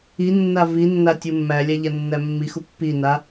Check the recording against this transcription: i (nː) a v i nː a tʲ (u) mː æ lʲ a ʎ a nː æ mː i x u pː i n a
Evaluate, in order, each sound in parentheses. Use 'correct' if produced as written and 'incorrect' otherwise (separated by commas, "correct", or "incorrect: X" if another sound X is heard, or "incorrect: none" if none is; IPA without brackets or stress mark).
correct, correct